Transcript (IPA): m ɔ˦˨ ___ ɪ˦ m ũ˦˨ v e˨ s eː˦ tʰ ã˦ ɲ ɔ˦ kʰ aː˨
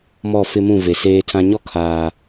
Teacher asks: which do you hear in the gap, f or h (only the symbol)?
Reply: f